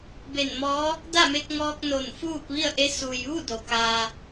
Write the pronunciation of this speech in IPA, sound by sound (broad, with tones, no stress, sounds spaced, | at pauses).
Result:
b e˧˩ n m ɔː˧˥ | d a˥˨ m e˧ k̚ ŋ ɔː˧ k̚ n o˧˩ n f uː˥˨ p̚ ʋ i˥˨ ə̯ ʔ e˧˥ s u˩ j ʋ u˥˨ d o˩ k aː˧